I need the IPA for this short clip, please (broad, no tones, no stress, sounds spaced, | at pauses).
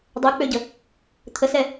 dˤ ø k͡p ø ɟ ə | t̪ʰ ə s ɛ